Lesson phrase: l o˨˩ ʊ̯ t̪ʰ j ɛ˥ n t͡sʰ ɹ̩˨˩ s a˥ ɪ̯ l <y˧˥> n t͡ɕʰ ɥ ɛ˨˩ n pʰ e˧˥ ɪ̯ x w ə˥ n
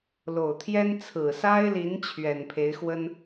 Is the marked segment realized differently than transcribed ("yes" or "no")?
yes